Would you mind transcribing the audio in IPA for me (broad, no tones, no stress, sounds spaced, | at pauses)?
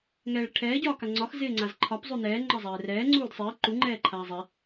ŋ ɛː ɭ ɾ ɪ ʈʰ ɛː ɟ ɒː k a ŋ͡ǀ ɒ x z ɪː ŋ͡ǀ a z ǃʰ ɒ p zˤ u n ɛː ŋ͡ǃ ɒ zˤ ɛː r ɛː ŋ͡ǀ uː d sˤ ɪː ǃ u ŋ͡ǃ ɛː ǃʰ aː zˤ ɛ